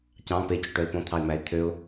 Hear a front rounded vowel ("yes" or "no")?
yes